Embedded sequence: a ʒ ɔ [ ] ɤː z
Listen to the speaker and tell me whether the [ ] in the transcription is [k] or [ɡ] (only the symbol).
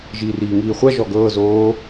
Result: ɡ